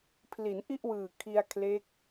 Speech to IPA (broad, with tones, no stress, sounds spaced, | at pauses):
pʰ l i˩˦ n ʔ i˥˩ ʔ w ɯː˨˩ kʰ i˧ a̯ kʰ l e˦˥ k̚